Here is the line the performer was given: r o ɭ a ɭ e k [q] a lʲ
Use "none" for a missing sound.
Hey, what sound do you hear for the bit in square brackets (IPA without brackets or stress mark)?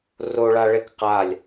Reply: q